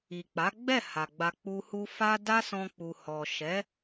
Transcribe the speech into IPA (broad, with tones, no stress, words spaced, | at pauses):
i˨k͡pa˨˦ɡ͡bɛ˦˨ ha˨ɡ͡ba˧k͡pu˧hu˦ fa˦ da˦sɔ̃˧k͡pu˨ hɔ˨ʃɛ˨˦